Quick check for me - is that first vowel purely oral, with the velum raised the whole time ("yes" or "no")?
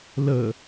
yes